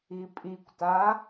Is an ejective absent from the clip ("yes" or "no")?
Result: no